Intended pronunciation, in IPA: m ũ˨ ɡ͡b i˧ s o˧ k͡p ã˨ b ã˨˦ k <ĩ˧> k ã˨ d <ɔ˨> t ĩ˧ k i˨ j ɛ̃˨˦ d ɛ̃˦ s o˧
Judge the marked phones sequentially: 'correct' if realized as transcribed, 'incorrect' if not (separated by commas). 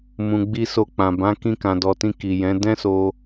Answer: correct, correct